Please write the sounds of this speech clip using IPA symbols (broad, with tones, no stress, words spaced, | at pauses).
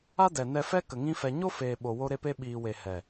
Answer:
a˦dɛ˨nɛ˧fɛ˦ kə˨ŋĩ˦fɛ˧ ɲo˦feː˨ɓo˨ wo˧ɾe˧pe˧ ɓiː˨we˨ hɛ˨